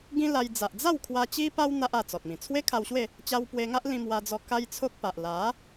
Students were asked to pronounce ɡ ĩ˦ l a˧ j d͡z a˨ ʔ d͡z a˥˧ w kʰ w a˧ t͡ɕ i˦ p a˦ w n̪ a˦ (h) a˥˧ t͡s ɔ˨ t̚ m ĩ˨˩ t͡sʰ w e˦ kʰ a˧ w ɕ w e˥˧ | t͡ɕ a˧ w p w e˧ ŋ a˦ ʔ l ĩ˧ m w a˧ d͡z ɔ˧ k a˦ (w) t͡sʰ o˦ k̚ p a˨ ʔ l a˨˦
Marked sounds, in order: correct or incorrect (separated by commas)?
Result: incorrect, incorrect